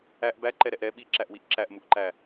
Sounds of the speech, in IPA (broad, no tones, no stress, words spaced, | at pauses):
æʔ bæǃɛɾɛʔ ɾɛ ɓiǁæʔwiʔ ǁæʔmuʔǃæ